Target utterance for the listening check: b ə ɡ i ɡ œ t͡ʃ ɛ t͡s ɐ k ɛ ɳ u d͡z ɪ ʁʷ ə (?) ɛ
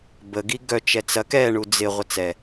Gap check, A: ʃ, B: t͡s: B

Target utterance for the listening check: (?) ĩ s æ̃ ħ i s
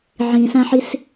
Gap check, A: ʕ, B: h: A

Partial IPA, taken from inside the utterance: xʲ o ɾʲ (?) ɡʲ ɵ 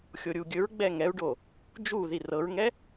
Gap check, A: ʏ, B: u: B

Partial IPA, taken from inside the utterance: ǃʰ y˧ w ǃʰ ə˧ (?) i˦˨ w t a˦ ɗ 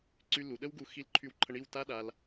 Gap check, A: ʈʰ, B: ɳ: B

